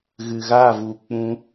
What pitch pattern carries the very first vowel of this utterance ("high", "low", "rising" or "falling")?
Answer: low